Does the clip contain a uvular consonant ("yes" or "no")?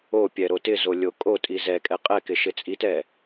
yes